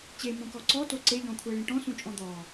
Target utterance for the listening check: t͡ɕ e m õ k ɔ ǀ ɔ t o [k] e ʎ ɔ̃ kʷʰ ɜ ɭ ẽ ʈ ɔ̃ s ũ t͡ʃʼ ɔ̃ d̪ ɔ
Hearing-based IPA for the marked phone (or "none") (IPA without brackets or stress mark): ǀ